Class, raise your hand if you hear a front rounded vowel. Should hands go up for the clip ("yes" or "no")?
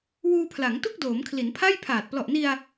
no